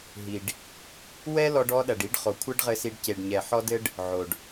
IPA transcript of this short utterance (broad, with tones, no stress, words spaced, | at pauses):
ɦi˨ɖ | wɛ˦lɔ˧ɖ ɔ˧ɗɐ˨ɖi˧ɖ χo˨kʷʰɛ˦ɖʁɘ˧si˧ɖ ce˨ɖɲɛ˨ ħɔ˧dɘ˧ɖ | ʕo˨ɖ